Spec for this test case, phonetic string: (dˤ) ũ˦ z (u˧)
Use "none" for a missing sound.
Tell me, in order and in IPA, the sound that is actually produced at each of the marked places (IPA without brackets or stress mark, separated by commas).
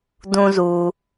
d, u˧